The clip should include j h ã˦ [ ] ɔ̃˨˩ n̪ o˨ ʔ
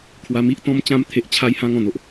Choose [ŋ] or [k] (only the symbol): ŋ